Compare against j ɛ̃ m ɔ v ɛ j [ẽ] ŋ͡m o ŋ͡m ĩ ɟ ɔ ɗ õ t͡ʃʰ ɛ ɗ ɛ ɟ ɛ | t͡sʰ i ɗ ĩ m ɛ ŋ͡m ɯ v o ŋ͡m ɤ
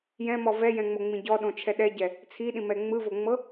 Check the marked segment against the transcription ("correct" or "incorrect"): incorrect